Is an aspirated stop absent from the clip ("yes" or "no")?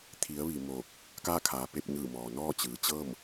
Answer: no